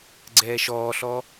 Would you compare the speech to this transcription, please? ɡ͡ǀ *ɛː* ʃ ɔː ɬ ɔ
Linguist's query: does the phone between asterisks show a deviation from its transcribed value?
no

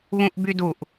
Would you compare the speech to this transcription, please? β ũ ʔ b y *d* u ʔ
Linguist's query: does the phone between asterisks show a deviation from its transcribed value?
no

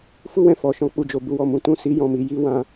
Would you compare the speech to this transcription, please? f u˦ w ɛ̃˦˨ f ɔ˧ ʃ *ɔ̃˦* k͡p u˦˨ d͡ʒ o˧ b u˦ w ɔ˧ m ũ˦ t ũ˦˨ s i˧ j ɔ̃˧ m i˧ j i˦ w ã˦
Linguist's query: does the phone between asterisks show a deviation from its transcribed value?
no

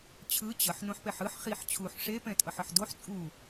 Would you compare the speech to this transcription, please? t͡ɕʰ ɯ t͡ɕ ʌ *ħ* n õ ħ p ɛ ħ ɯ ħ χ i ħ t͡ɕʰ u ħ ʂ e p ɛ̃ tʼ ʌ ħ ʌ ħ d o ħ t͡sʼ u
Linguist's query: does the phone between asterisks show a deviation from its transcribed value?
no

